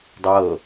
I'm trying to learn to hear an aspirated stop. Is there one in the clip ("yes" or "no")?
no